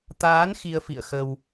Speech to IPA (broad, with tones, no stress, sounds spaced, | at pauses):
t̪ aː˨˦ n x i˧ ə̯ f ḭ˧˨ ə̯ x ə˧ w